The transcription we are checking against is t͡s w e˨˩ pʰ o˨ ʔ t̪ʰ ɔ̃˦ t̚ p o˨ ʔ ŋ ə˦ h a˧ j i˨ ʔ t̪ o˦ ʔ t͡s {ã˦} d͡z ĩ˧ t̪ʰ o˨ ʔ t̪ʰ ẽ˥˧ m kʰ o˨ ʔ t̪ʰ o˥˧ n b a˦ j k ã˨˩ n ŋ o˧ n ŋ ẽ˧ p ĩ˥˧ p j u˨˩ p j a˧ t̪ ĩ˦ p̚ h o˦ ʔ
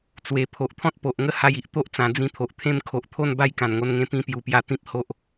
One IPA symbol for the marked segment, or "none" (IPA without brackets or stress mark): ã˨˩